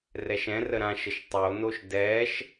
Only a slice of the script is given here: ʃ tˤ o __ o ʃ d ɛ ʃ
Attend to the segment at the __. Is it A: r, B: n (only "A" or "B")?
B